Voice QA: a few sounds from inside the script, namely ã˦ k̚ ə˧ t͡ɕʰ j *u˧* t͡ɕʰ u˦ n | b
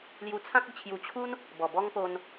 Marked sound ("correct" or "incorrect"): correct